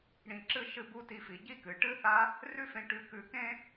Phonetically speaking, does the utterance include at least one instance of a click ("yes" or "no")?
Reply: yes